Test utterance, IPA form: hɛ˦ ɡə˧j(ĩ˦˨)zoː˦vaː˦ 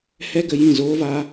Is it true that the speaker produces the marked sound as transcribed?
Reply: yes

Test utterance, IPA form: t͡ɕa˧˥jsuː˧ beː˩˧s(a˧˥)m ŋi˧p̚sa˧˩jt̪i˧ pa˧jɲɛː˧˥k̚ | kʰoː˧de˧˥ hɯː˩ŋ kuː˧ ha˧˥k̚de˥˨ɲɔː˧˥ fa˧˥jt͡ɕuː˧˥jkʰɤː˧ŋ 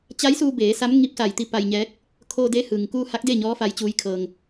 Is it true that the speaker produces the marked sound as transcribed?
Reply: yes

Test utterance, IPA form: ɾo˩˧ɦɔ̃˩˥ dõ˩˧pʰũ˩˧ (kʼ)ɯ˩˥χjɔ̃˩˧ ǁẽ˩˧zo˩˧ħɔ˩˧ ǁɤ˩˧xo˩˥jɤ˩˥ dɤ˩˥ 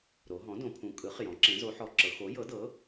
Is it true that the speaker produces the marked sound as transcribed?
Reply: yes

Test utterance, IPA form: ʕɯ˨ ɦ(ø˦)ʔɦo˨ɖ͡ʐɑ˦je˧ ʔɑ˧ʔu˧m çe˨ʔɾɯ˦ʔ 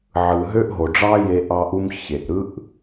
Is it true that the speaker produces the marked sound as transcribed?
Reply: yes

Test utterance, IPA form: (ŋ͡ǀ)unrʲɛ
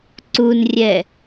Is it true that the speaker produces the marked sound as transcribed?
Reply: no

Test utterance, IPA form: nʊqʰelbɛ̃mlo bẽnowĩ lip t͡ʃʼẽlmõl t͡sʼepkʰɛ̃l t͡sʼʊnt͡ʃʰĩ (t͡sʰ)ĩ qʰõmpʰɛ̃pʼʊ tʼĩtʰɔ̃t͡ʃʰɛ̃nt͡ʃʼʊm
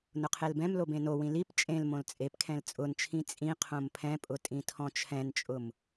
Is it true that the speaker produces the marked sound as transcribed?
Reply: no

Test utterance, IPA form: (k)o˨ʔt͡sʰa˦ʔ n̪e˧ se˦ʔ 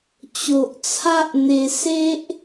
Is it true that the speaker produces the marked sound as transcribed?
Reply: no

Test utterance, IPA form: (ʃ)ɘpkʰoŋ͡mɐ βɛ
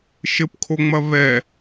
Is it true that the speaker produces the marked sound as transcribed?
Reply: yes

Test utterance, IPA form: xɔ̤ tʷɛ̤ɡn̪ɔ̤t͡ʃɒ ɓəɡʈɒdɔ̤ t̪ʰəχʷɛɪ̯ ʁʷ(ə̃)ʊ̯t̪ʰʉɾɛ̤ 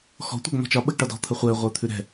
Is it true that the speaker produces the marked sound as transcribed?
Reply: no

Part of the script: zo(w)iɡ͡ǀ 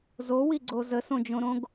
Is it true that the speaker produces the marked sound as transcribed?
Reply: yes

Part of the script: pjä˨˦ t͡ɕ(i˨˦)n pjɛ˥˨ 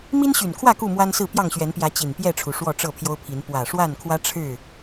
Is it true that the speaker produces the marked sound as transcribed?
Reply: no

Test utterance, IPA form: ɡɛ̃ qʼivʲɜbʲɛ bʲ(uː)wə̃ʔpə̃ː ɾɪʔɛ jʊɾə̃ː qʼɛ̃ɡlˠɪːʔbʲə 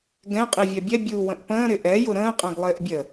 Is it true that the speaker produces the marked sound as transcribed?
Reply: yes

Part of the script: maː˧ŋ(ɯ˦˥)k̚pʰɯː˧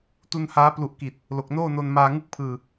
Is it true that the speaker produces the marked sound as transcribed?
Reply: no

